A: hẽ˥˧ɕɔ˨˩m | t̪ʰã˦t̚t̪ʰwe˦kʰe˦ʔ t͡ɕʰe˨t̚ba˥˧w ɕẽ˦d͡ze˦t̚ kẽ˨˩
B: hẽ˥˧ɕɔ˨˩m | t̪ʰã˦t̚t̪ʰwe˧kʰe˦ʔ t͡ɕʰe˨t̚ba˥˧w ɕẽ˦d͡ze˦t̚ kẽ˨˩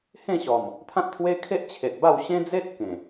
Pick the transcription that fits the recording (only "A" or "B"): A